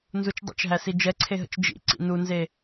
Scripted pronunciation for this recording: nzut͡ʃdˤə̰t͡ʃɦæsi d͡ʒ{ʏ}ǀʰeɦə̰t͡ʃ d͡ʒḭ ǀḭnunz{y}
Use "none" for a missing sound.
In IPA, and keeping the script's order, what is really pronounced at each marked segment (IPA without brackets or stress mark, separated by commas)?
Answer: ɛ, e